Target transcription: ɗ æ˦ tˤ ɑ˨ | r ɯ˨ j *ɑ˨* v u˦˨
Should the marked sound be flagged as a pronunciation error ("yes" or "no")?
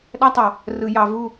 no